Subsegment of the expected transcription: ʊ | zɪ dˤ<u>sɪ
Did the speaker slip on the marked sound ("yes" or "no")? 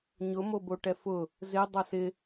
yes